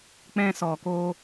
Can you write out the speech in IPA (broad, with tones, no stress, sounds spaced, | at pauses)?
k͡p ɛ̃˧ s ɔ˨ k o˧